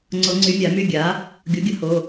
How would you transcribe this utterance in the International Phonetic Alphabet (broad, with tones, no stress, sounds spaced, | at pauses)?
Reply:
ŋ͡ǀ o˨˩˦ ŋ͡ǀ y˨˩˦ mʲ a˨˩˦ m y˦˨ ɡʲ a˩˥ | ɡʲ o˩˥ ɡʲ ə˩˥ h o˩˧˩